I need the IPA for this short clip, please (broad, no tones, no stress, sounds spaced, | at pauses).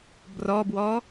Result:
b r ɔ b w ɔ